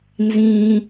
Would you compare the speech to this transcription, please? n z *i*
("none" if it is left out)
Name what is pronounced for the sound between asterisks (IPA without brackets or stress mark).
ĩ